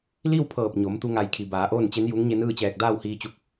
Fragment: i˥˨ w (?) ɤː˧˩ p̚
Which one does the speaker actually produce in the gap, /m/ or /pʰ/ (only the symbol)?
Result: pʰ